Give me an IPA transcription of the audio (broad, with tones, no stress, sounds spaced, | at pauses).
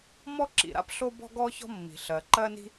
m ɔ˥ ǁ ḭ˩ ɾ a̰˥ p ɬ o˥ b ɔ̤˥ ɡ ɔ˥ ç ɔ̤˥ mː i̤˩ ɬ ɜ˩ ǃ ɜ˥ n i̤˥